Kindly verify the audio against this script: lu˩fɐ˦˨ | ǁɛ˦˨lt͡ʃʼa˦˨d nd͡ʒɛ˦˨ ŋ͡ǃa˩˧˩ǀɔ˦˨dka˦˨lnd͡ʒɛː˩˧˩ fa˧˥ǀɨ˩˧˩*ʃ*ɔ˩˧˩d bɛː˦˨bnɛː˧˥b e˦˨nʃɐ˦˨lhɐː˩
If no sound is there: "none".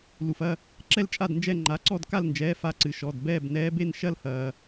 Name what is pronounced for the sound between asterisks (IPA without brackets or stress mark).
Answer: ʃ